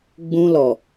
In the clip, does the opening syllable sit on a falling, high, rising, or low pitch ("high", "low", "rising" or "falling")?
high